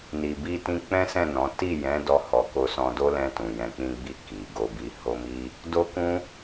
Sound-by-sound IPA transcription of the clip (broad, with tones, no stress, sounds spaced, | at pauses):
n i˨ b i˧ t ĩ˧ k͡p ɛ̃˦ s ɛ̃˦˨ n ɔ̃˨˦ t i˦˨ j ɛ̃˨˦ d ɔ˧ h ɔ˨ k o˧ s ɔ̃˧ d o˦ l ɛ̃˧ t ũ˨ j ɛ̃˨ k͡p ĩ˧ ɡ͡b i˧ k i˨ ɡ o˧ b i˧ h o˦ m i˦ | d o˦ k ũ˦